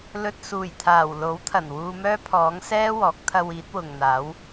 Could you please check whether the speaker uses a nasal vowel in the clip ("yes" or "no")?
no